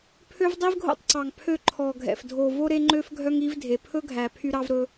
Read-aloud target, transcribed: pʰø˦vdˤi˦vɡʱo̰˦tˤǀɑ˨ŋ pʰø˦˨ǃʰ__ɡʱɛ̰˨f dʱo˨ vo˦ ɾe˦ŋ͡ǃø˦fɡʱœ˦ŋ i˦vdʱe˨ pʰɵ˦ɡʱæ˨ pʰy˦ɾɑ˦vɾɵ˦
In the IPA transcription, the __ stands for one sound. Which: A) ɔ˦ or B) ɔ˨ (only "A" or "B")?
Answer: B